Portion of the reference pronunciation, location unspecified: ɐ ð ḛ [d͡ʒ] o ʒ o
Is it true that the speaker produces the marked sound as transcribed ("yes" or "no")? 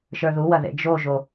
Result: yes